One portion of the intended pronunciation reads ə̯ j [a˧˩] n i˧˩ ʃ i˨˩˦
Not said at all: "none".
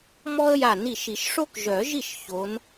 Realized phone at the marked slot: a˧˩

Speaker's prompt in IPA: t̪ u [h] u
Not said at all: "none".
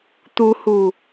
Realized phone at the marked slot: h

